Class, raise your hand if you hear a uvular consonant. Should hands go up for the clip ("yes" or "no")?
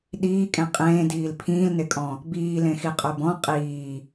yes